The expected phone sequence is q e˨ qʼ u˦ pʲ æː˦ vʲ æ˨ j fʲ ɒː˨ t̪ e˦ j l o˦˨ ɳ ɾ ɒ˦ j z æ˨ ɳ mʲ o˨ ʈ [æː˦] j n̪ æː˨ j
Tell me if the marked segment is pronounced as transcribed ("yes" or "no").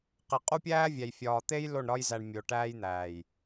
yes